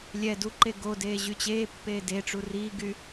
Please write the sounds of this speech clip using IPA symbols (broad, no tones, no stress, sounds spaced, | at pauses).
lʲ ɛ d u ǃ e ɡ o d eː ʑ y t͡ɕ eː pː eː d e ʈ͡ʂ u r iː ɡ y